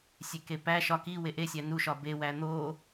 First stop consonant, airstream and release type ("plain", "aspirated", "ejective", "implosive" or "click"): plain